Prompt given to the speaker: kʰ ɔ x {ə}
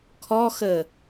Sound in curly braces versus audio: correct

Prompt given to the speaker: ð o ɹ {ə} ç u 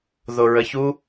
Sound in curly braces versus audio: correct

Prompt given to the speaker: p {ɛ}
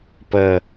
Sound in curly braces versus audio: incorrect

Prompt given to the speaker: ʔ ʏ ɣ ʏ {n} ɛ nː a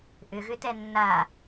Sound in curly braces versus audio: incorrect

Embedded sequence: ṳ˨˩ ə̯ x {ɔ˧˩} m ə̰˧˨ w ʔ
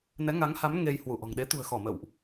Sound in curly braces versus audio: correct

